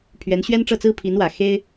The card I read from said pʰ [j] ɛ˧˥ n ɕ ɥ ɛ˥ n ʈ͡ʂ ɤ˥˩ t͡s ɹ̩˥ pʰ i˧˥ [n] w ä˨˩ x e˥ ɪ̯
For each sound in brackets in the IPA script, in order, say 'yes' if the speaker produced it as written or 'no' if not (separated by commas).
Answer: no, yes